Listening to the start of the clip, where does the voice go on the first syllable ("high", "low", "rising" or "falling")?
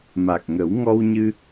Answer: low